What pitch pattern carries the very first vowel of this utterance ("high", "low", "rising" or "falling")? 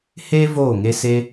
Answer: high